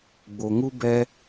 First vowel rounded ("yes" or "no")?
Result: yes